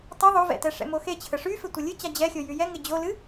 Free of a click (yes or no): yes